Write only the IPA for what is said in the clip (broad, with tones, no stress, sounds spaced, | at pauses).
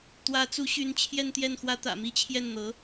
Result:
t̪ w ä˧˥ t͡s u˧˥ ɕ y˧˥ n t͡ɕʰ j ɛ˥˧ n t̪ j ɛ˥˩ n x w ä˥ t̪ ä̰˨˩ m i˥ t͡ɕʰ j ɛ˥˩ n n̪ ɤ˧˥